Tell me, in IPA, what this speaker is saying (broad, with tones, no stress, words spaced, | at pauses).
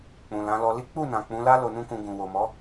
k͡pũ˨lã˨˦lɔ˧ li˦ k͡pu˦˨nã˨ k͡pũ˨˦la˦ lo˧nũ˦kũ˧ ɡũ˨wo˨mɔ˨˦